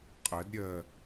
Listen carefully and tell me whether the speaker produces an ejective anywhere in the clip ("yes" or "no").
yes